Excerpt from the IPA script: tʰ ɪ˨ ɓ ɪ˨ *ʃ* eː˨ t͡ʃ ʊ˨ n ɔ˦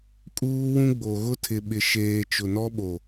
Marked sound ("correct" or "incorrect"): correct